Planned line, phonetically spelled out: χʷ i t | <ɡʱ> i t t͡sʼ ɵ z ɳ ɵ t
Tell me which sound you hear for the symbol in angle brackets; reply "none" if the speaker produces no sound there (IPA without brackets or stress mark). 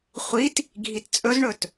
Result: ɡʱ